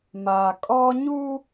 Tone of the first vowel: low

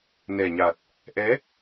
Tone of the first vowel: low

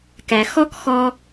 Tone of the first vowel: low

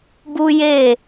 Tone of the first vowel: high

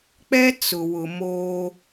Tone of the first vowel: high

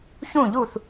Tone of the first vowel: falling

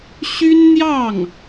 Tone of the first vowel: high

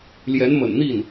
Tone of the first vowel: rising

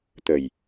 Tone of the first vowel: low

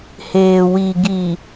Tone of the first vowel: low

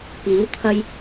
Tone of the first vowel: rising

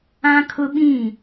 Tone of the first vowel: high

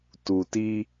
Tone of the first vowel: low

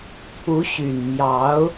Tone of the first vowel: rising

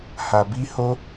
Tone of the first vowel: low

